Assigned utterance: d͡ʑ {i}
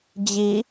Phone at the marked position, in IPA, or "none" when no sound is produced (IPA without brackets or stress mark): i